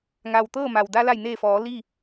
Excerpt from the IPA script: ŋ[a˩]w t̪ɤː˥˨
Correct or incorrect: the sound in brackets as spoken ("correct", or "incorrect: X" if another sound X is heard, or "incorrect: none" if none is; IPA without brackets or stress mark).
correct